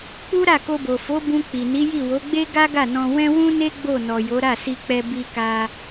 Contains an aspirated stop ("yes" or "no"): no